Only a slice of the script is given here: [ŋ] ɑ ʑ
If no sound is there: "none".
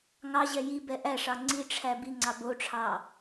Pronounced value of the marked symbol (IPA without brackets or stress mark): ŋ